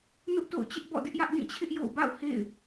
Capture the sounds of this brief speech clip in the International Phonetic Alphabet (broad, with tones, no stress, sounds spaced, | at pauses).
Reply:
n ʊ˦ ʔ t o̰˦˨ ʊ̯ t͡ɕ ɪ˦ ʔ b ɔ̰˦˨ d ɪ˦ ʔ j ä˦ ʔ d ĩ˦˨ t͡ɕʰ ɪ˦ ʔ j o̰˦˨ ʊ̯ b a̰˦˨ ʊ̯ h ḛ˦˨ ɪ̯